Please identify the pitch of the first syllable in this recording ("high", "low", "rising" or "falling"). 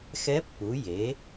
rising